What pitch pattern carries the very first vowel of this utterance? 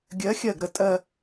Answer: rising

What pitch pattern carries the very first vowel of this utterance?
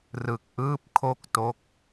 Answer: low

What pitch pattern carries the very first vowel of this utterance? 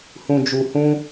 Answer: low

